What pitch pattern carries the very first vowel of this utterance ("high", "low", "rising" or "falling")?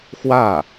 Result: falling